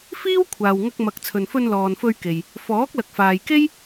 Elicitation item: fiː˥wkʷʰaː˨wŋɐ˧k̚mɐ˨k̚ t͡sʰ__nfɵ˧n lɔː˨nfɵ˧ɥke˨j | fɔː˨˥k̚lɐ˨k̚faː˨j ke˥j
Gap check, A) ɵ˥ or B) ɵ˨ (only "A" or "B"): B